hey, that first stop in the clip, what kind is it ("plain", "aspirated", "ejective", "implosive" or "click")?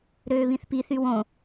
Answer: plain